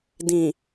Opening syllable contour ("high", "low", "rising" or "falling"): low